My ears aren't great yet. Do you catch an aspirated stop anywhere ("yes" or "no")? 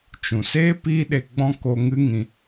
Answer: no